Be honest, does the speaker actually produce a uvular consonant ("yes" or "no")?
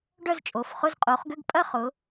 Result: yes